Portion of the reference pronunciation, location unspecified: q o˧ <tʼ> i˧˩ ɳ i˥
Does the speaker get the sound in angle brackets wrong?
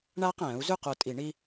no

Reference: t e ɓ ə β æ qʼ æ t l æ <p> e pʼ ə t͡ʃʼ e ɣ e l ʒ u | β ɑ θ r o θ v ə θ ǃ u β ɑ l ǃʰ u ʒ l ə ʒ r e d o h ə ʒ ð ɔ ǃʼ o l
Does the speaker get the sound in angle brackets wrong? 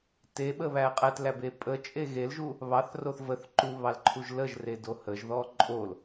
yes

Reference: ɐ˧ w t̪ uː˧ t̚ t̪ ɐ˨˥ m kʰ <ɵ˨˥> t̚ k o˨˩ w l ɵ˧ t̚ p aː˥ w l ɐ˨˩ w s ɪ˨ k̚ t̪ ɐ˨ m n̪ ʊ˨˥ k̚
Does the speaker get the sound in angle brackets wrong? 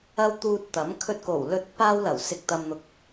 yes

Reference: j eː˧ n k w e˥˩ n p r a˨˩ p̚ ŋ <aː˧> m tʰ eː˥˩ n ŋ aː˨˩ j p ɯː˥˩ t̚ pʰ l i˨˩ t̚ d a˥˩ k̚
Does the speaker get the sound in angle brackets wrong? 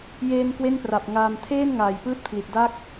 no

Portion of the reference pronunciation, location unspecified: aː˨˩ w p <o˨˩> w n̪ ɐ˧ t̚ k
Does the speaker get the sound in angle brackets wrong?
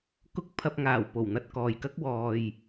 no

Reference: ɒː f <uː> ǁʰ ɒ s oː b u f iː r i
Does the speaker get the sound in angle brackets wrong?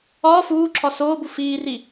no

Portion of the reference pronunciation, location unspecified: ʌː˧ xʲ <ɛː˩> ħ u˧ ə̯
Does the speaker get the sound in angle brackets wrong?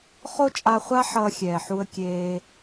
no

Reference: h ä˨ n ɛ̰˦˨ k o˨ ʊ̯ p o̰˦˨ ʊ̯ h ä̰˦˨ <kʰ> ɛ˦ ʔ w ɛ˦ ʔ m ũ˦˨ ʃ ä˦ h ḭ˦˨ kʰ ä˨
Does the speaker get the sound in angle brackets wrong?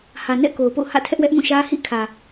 yes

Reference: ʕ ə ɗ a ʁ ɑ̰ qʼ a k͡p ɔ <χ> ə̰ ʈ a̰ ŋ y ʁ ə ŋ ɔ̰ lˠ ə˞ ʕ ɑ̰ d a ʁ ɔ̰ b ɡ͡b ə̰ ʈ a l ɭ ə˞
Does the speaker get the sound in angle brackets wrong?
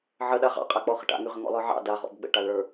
no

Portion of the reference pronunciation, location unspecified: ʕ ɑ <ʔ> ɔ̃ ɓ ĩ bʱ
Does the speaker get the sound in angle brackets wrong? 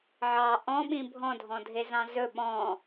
no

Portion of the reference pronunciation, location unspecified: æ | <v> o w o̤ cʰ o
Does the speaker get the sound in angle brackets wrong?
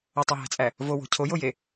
no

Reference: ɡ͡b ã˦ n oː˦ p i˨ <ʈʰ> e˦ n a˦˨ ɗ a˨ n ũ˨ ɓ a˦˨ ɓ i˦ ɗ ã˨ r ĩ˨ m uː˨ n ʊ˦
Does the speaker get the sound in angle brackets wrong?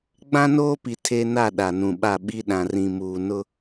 yes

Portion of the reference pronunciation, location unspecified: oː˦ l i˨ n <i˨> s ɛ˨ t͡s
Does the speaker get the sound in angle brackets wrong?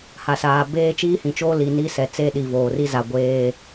yes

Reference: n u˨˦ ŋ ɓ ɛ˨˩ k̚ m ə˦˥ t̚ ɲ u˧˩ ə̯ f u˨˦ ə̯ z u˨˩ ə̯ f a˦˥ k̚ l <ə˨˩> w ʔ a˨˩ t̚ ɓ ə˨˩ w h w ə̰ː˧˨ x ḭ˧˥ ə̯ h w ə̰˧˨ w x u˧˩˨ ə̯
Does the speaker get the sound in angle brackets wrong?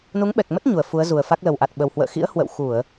no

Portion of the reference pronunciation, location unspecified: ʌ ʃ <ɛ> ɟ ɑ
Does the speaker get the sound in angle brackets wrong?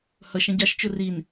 yes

